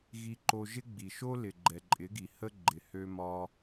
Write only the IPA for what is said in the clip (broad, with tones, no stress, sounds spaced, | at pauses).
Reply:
ɣ i˧ ǃ o˧ ʒ ɪ˦ ɡ͡b i˨ ʃ o˦ l ɪ˨ ɡ͡ǃ ɛ˨ ǃʼ ɪ˨˦ ɡ i˨ h ə˦ ɡ͡ǃ ɪ˨ h ø˧ m ɒ˧